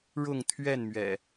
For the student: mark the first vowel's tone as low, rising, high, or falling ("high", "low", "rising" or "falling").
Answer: falling